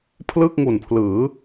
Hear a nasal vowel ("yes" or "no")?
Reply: no